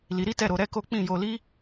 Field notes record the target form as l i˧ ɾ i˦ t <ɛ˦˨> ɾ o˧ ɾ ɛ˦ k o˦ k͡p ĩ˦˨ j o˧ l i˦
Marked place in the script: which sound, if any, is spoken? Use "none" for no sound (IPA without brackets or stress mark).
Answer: ɛ˦˨